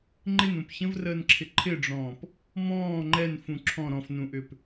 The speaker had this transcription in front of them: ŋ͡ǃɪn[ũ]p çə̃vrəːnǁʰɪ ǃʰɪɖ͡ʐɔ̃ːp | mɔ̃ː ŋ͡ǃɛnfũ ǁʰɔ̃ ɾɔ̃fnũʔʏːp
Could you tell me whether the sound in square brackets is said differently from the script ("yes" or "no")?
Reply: no